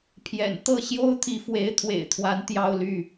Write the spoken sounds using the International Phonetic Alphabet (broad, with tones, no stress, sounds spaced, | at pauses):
pʰ j ɛ̰˨˩ n t̪ ɤ˥˩ ɕ j o˥ ʊ̯ t̪ʰ i˧˥ f w e˧˥ ɪ̯ t̪ʰ w ḛ˨˩ ɪ̯ t̪ʰ w a˧˥ n t̪ j ɑ˥˧ ʊ̯ l y˥˩